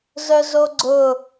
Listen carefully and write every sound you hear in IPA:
zœzoɡ͡ǀʊ

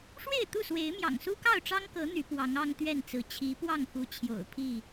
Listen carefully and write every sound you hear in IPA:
ʂwe˥˨ɪ̯t̪u˥˨swe˨˦ɪ̯mjɑ̰˨˩ŋ su˦kɑ˥˨ʊ̯ʈ͡ʂɑ˦ŋkɤ˨˦ n̪y˨˦ pwɑ˨˦ŋɑ˦ŋ t̪ɥɛ˥˨nt͡sɹ̩˨˦ t͡ɕʰi˨˦pwɑ˥˨ŋxu˨˦ t͡ɕʰjo̰˨˩ʊ̯pʰi˥˨

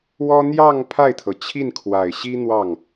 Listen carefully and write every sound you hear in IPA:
wɔ˥ n̪jɑ˥˧ŋ pʰa˥˩ɪ̯t̪ʰɤ˩t͡ɕʰi˥˩n kʰwa˨˩ɪ̯ɕi˥ n̪wɑ˥˩ŋ

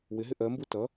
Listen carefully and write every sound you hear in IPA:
wɪɦɪ ʔɜmbu tʌ

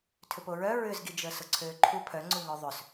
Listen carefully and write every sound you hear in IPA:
tʰʏpoɹœ ɹʏzɡid͡ʒə sʊǀʰøːǃʰu pʰœŋ͡ǀu ŋœðˤʏs

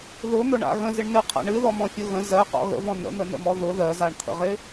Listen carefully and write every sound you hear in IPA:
ðʊn̪ʊɳa̰ ɣə̃zɪɳnɨqʰa̰ ɳɨðɔmɔ̃fʲʊ ɣə̃ zɜqɔ̰ ɣə̰vɔ̃ nə̰n̪ənə̰mɔ ðʊ ðɜzaɳt̪ʰə̰ʁɪ

